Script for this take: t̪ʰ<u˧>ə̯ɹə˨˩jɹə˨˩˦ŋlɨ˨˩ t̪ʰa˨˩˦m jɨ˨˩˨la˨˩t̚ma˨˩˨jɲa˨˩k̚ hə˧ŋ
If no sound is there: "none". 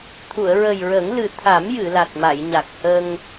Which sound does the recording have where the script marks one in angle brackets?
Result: u˨˩˨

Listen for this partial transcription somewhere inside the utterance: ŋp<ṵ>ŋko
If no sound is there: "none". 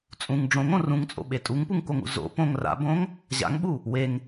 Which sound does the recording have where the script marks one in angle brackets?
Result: u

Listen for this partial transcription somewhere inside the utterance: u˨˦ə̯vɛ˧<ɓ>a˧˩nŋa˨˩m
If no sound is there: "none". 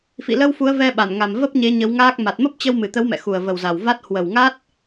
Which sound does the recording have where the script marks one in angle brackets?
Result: ɓ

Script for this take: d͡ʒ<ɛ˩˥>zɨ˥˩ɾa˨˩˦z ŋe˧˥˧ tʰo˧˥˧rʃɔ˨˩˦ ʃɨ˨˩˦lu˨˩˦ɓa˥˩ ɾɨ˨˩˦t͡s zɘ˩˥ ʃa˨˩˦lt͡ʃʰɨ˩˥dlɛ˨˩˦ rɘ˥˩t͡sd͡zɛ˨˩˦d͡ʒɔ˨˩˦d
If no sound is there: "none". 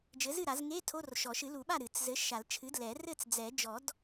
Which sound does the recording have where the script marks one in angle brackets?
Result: ɘ˩˥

